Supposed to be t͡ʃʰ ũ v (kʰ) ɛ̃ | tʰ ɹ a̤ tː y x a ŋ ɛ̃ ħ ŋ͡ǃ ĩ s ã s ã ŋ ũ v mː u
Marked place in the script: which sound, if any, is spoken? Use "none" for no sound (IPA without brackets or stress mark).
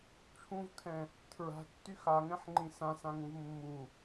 kʰ